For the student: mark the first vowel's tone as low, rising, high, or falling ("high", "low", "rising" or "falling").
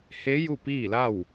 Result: rising